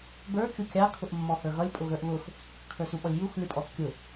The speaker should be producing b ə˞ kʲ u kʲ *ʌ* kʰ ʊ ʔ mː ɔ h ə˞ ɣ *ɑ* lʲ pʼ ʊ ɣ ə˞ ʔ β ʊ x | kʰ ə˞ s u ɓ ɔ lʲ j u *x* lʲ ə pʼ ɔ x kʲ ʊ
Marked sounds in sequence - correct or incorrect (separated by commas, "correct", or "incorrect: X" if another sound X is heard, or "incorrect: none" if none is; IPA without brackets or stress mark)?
incorrect: ɑ, incorrect: ʌ, correct